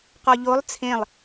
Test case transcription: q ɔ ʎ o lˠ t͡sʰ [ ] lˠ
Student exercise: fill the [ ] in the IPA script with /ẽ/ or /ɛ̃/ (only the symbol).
ẽ